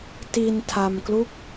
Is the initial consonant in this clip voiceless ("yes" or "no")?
yes